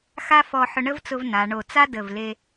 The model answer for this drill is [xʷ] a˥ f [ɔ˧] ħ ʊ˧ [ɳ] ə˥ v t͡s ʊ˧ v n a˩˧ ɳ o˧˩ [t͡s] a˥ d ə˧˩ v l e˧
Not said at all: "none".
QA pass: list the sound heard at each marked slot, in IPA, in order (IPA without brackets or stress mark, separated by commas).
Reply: x, ɔ˧, ɳ, t͡s